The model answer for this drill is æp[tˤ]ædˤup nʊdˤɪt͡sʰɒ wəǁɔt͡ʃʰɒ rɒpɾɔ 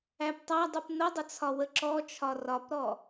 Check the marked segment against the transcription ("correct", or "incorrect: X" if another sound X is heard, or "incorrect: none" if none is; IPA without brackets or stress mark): correct